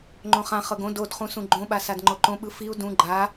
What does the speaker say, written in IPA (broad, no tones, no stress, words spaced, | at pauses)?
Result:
ŋ͡ǃõχãχɤɡ õ dodχũ sũɡ͡ǃõɓa sadŋ͡ǃoǃõ ɓɯfiu̯ dũ ɡ͡ǃa